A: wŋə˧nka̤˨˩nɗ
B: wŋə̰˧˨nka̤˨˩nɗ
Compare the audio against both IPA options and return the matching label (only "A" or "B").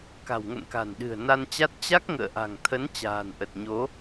B